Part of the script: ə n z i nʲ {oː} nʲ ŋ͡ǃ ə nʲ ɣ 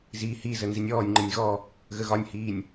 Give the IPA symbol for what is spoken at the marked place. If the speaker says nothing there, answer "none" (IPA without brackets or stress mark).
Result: ɔː